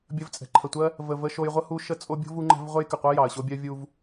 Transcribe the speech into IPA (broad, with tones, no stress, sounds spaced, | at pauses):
bʲ ə˨ v t͡sʼ ɛ̤˩ ǃʰ ə˩ tʷ ɜ˦ | v ə˩ v ə˨ ʃ o˨ j ʁʷ ə˦ h u˦ ʃ ə˦ t͡sʼ o˦ bʲ o̤˥ v u˦ ŋ͡ǃ ɛ̤˦ v ʁʷ ɛ˥ j k ə˩ qʷ ɜ˥ j ɑ˩ ə̯ ɕ o˦ bʲ ɜ˦ vʲ u˦ v